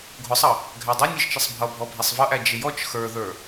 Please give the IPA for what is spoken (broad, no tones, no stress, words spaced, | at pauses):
ɡʱʊsˤʌ | ɡʱædˤɪ nʲʌʒt͡ʃɪsˤbʱʌbʱɔ bʱɛsˤvʌʔæ d͡ʒɪjɔt͡ʃ xə˞ðə˞